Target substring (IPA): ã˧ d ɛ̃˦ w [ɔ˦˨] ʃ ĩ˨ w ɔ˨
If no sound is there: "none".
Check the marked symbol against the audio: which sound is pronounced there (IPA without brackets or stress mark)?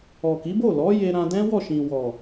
ɔ˦˨